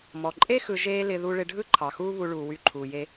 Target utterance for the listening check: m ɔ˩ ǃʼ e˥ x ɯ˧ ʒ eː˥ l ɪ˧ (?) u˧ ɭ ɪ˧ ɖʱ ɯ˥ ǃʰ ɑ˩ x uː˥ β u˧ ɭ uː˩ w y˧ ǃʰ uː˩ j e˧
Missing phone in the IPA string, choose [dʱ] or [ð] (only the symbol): ð